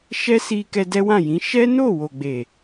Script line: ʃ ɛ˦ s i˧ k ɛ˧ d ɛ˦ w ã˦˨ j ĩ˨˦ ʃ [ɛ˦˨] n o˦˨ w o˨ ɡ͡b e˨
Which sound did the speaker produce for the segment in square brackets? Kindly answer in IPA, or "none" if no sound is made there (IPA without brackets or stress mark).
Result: ɛ˦